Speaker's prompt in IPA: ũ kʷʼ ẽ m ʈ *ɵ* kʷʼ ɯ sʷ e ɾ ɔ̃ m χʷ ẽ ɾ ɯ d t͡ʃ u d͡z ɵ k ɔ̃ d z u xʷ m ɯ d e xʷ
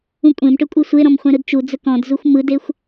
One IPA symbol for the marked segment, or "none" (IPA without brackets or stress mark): ɵ